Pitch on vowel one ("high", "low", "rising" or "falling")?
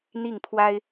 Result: falling